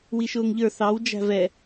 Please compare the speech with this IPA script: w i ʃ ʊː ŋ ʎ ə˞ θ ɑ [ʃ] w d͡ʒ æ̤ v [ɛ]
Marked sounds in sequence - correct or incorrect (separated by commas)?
incorrect, correct